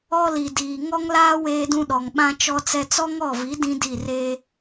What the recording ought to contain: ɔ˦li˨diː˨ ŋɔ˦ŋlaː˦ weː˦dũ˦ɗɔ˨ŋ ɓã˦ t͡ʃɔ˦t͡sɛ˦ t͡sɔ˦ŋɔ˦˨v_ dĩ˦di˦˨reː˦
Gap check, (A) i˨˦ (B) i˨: A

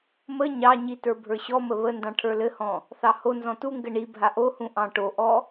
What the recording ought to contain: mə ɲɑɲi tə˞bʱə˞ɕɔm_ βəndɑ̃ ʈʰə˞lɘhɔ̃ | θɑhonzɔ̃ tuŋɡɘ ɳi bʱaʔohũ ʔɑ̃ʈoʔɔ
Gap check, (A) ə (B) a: A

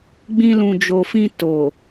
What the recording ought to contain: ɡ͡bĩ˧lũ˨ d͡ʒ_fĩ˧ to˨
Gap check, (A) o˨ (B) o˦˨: A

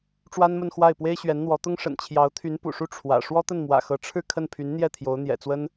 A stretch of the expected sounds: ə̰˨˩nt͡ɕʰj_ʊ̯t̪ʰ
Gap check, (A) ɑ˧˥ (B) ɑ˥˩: A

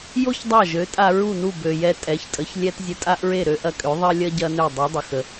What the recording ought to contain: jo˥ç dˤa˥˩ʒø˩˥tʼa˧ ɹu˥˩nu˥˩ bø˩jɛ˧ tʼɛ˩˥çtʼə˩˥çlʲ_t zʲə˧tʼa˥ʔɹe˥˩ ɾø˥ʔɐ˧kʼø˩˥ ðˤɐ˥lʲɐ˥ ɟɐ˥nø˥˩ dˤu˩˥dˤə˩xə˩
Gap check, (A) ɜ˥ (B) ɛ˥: B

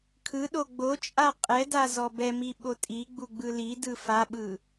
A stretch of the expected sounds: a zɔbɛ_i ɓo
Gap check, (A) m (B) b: A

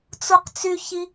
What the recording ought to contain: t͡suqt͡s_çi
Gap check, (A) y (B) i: A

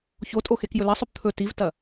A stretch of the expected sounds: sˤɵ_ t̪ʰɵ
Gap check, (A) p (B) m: A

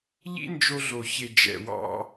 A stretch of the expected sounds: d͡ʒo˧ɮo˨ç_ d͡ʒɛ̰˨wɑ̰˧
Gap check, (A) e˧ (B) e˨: B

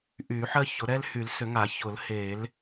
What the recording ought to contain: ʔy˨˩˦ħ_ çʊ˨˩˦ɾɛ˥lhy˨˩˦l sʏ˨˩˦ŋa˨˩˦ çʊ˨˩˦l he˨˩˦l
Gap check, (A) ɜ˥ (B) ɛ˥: A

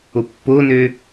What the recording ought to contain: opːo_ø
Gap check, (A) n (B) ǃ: A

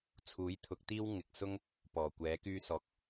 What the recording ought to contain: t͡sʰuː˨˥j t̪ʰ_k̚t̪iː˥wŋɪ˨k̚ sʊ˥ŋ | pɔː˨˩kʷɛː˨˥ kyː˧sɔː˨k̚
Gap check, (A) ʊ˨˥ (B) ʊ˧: A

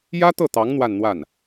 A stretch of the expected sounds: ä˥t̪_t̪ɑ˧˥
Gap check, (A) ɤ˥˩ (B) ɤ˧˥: A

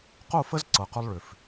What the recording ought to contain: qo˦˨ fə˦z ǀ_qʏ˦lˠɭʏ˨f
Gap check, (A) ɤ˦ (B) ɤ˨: B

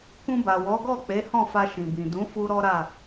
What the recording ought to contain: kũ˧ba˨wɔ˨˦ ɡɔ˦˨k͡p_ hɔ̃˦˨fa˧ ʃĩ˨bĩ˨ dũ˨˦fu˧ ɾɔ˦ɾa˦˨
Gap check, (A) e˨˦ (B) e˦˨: A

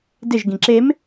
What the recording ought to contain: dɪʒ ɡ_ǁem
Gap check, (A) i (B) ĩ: B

